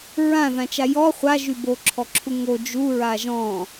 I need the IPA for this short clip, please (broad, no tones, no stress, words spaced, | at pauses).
ɹãðãt͡ʃa jɔ χʷaʒy boǁʰɔǁʰu ŋo d͡ʒuɹa ʒɔ̃